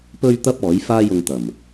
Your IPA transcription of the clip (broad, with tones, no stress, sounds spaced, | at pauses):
p ɵ˥ ɥ t̪ ɐ˥ p̚ ɔː˨˥ j f aː˥ j ʊ˧ ŋ t̪ ɐ˨˩ m